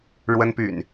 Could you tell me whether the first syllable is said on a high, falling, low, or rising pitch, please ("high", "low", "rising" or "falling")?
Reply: high